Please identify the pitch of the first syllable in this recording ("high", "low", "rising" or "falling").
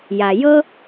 low